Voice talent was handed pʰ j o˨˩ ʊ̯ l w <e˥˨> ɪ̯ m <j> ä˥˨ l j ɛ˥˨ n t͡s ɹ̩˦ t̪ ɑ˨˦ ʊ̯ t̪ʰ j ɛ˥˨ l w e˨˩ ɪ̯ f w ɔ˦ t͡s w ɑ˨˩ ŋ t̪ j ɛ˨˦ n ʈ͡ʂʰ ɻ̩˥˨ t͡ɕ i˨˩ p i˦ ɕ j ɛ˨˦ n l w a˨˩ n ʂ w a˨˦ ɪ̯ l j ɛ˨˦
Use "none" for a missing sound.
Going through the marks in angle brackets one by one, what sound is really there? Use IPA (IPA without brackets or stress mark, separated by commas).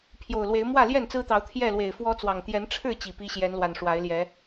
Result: e˨˦, w